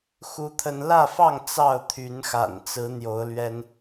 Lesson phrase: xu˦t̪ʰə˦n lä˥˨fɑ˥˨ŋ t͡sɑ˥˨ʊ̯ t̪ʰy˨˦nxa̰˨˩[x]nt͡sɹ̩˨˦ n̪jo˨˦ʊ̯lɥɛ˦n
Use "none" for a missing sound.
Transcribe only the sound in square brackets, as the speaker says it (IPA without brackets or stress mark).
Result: none